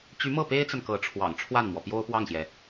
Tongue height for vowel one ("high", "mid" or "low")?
high